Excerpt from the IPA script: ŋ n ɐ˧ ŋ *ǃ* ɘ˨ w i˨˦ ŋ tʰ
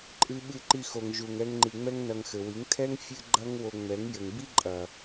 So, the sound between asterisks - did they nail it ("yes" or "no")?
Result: no